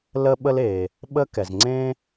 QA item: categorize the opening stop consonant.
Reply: implosive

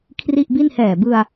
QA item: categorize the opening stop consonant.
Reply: aspirated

